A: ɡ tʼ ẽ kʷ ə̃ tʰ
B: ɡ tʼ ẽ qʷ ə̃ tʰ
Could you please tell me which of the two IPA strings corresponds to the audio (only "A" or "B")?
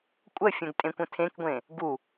A